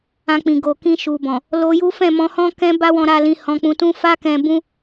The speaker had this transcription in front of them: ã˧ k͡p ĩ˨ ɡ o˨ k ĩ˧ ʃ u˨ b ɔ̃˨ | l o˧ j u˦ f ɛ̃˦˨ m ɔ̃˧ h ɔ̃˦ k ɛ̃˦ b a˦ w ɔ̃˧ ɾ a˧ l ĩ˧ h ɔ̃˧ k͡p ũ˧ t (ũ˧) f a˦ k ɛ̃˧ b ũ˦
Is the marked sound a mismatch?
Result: yes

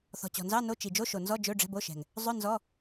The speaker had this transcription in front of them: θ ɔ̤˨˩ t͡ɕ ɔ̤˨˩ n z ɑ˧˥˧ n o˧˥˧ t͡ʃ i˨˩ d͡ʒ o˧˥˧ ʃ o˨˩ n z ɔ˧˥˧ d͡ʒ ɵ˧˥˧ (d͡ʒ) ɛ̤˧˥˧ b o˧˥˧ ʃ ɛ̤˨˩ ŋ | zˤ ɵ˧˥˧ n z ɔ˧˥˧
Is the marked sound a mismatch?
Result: yes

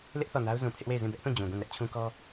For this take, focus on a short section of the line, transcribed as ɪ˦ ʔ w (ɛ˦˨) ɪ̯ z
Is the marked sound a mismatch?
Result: yes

